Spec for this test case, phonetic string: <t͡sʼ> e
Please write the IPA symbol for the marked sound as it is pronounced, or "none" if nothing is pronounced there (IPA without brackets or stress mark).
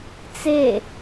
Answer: t͡s